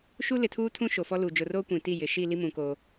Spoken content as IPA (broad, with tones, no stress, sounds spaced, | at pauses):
ʃ u˦ l ɪ˨ tʰ uː˦ tʰ ũ˦ ʃ o˨ f ɔ˦ l uː˨ d͡ʒ ʊ˨ r oː˦ kʷ ĩ˨ t i˦˨ j ɪ˨ ʃ i˦˨ l i˦ m ũ˨ k oː˦